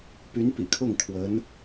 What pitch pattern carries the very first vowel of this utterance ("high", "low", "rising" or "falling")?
rising